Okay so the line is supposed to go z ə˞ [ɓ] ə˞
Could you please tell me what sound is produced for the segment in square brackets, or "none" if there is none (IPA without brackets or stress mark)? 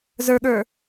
ɠ